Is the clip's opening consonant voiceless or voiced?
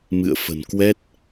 voiced